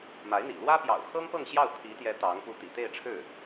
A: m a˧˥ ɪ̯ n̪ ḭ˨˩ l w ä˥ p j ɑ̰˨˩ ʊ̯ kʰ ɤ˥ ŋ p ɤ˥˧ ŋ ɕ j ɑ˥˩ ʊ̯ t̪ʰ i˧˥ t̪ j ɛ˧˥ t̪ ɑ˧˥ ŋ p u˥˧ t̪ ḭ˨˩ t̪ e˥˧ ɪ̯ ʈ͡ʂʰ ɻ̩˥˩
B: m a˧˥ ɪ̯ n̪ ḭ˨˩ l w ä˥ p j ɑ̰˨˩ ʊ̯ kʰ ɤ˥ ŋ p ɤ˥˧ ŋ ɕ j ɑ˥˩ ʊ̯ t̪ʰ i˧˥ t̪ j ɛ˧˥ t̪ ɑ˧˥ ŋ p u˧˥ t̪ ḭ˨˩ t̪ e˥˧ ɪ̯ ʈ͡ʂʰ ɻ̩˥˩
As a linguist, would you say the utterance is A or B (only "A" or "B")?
B